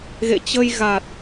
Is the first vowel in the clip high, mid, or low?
mid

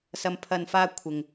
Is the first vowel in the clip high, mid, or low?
low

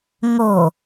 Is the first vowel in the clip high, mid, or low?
mid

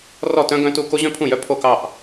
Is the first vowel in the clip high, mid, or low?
mid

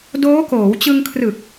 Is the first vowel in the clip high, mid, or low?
mid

